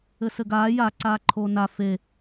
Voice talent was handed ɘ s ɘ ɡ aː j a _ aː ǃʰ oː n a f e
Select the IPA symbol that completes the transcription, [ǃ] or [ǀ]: ǀ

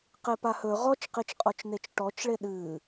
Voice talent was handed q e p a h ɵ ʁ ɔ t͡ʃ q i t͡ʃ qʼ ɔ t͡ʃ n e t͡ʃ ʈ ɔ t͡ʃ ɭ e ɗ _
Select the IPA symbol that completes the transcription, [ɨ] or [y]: ɨ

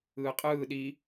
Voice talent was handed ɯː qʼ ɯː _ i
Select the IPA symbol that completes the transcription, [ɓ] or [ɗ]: ɗ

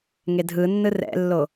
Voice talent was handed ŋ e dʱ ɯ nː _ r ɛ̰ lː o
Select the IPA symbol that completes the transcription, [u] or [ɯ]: ɯ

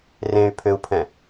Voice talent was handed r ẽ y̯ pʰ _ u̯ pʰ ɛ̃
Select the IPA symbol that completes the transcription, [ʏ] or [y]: ʏ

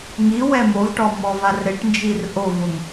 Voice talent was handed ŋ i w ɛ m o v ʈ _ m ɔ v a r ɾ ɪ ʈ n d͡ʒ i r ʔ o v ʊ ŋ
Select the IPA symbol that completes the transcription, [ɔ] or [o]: ɔ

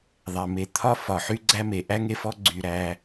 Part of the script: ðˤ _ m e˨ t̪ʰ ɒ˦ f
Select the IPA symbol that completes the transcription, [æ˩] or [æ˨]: æ˩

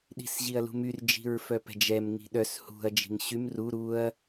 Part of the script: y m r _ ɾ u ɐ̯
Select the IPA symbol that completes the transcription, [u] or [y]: u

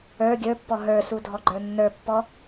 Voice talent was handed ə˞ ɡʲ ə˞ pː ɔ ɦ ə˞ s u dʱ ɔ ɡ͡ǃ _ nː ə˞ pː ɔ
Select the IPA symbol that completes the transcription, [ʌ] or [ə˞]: ə˞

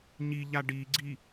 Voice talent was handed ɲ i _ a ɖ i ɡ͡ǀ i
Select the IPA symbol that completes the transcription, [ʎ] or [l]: ʎ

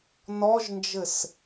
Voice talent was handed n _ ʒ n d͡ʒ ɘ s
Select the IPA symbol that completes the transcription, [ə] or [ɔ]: ɔ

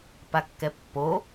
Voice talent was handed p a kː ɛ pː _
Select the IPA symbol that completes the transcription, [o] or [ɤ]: o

